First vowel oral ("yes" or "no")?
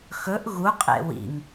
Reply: yes